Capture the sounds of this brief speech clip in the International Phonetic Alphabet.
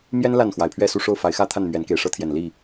mjɛ˦n la˥˨nxwa˨˩ɪ̯pʰɥɛ˥˨su˥˨ ʂo˥˨ʊ̯fa˨˦ɪ̯xä˥˨t̪ʰa˥˨n mɥɛ˨˦nke˨˩ɪ̯ʂɤ˦t̪ʰjɛ˨˩n li˥˨

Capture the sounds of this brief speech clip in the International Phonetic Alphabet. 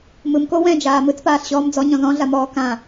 mɯmko wɛ̃d͡ʒaː mɯt͡spaːɬɕɔːm d͡zɔɲɔ̃ ðɔ̃ɮamɔː kã

